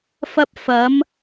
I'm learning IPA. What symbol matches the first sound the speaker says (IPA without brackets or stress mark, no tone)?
f